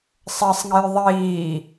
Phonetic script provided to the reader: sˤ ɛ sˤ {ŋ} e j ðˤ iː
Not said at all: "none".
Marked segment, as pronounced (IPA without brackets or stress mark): ŋ